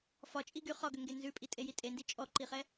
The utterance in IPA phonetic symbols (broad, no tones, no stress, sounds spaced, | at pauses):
f ɒ t͡ʃʼ i ɡ y χ ɒ ɡ ʏ ŋ ɡ e n z ʉ pʼ i tʼ e j i tʼ e n d i t͡ʃʼ ɔ ǃ i χ ɛ